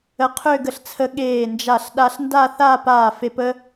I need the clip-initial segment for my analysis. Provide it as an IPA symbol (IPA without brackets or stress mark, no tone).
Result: ə